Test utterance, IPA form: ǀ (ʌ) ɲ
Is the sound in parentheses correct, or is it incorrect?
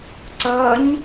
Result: correct